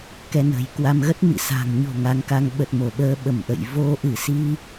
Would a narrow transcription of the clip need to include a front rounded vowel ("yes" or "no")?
no